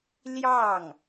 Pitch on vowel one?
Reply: falling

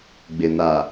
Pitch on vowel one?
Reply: low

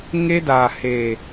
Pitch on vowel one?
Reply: high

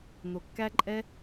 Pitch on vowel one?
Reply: low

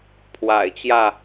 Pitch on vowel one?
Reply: low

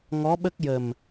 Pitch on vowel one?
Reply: rising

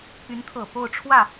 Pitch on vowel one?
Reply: rising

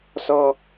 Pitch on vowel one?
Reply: high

